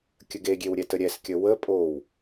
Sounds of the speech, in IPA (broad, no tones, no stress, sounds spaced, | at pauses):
kʲ ə ɡ e ɡʲ e w ɾʲ ɛ t ə ɾʲ ɛ s kʲ ə w ə pʼ o w